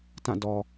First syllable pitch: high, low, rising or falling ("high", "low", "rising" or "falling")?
falling